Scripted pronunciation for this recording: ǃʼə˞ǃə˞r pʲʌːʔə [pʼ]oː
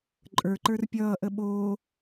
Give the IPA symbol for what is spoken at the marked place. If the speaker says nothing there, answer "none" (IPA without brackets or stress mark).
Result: ɓ